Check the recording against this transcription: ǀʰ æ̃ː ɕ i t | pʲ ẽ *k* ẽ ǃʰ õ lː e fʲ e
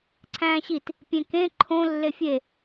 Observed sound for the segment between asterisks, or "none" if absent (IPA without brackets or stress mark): k